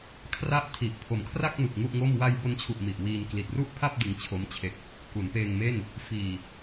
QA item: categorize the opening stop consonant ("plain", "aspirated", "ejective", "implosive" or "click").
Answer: aspirated